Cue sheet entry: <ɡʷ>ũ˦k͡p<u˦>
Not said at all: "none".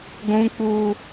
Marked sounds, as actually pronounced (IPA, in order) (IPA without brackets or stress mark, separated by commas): ɡʷ, u˦